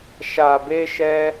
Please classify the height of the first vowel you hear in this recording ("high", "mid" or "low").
low